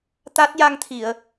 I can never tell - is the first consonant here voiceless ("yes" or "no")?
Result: yes